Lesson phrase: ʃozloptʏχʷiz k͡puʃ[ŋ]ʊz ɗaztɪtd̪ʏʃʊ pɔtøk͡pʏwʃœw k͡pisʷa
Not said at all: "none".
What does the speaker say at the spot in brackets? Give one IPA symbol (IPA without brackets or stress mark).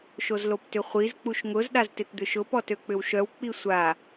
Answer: ŋ